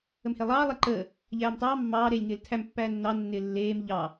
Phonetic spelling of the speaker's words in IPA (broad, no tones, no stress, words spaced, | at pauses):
əmhelˠɑː lˠeǃəː | ʎæːmtˤɑː mːɑː ɾeːlʲŋɪːltʰæm pːæːnːɑ nːɪːlːeːm ʎɑ